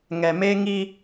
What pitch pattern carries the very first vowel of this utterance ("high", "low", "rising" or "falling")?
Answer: low